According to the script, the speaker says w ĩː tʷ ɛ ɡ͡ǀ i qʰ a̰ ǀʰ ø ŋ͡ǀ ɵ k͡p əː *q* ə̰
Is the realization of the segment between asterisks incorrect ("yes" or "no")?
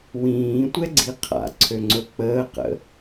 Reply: no